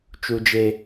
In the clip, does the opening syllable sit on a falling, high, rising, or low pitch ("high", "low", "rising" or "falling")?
low